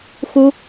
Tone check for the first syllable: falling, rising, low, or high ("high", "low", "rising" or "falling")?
high